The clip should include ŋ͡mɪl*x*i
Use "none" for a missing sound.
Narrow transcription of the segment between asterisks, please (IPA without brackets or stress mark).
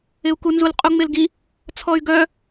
ɡ